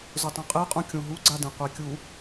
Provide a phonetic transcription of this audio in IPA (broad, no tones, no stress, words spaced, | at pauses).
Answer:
zʊtˤũqʼeqʼũ kʲõɦuɡ͡ǀadẽ qʷekʲu